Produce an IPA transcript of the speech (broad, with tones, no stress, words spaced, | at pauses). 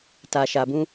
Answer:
ta˨ʃa˨bũ˧